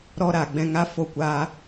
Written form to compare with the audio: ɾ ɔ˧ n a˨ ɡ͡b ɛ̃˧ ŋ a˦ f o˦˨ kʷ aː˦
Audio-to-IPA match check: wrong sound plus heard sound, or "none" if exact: n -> ɾ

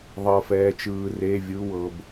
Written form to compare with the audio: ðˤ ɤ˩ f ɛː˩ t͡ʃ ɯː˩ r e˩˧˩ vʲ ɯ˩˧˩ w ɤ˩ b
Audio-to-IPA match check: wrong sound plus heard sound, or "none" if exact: none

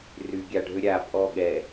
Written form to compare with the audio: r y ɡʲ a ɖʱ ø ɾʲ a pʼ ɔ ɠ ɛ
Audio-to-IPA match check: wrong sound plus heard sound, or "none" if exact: none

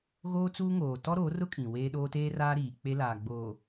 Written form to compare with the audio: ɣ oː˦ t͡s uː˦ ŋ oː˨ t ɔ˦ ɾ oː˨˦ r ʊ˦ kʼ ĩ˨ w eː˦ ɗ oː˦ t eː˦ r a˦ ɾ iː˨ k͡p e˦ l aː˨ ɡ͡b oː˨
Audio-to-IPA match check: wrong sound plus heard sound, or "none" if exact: a˦ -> aː˦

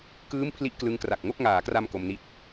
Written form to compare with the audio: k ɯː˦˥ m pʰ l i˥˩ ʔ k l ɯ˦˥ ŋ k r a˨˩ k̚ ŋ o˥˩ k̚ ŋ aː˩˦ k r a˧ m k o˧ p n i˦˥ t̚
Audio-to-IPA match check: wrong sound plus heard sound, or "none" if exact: p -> m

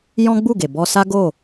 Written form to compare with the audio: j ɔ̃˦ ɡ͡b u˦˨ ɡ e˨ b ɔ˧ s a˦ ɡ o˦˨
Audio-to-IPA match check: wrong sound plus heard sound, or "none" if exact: none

